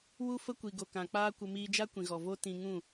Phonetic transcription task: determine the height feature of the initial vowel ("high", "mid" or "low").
high